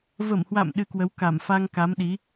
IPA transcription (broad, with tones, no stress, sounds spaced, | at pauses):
v ə˧˩ m h w a̰˧˨ m ɗ ɨ˧ k w ə˨˦ w k a˧˩ m f a˧ ŋ k a˨˦ m ɗ i˨˦